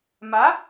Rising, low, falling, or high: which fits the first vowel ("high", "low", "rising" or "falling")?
rising